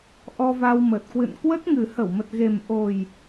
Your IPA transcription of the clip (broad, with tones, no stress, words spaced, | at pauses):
ʔɔ˧va˧wmə˨˩t̚ kwɨ̰˧˨nkwə˦˥t̚ŋɨ˨˩ hə˧˩wmə˨˩t̚ ɣe˨˩mʔo˨˩j